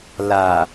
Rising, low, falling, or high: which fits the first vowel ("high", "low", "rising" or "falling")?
low